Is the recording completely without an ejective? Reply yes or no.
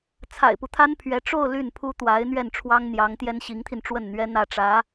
yes